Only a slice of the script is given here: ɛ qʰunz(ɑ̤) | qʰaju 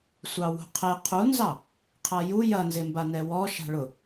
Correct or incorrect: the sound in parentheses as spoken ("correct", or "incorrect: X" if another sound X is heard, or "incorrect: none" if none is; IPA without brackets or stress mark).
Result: incorrect: ɑ